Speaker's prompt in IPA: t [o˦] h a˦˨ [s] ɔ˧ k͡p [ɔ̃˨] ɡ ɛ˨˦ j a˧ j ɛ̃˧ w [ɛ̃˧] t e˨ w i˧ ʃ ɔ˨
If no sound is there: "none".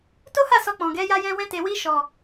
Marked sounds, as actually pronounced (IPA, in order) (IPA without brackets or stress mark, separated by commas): o˦, s, ɔ̃˨, ɛ̃˧